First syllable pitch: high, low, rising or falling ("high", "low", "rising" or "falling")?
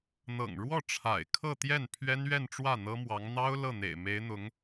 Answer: low